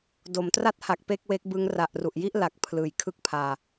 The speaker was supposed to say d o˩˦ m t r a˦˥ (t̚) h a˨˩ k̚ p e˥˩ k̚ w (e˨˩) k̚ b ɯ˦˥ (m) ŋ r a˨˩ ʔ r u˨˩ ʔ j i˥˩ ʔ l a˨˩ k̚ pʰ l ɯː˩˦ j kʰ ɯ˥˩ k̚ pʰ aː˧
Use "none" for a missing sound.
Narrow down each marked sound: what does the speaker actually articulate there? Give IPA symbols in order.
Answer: t̚, e˦˥, none

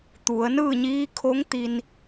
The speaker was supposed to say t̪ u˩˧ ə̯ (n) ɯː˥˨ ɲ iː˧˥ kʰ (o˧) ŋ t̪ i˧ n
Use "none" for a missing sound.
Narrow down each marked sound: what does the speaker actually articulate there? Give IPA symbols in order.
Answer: n, o˧˥

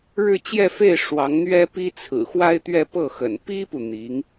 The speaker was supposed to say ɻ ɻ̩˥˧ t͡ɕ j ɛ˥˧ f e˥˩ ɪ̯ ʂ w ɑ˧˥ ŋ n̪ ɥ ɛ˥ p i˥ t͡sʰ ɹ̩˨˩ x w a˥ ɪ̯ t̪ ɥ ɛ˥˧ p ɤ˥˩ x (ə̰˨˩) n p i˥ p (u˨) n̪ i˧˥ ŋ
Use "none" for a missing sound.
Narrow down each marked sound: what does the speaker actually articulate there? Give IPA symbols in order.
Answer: ə̰˨˩, u˨

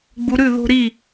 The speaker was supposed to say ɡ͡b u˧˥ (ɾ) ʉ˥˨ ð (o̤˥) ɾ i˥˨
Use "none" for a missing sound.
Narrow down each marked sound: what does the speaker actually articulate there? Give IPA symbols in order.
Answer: ɾ, o̤˥

